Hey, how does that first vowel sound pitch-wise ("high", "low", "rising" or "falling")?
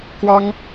high